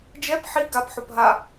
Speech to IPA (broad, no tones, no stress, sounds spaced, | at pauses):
d͡ʒ ɛ p ħ i ɡ a p ħ o p ɦ a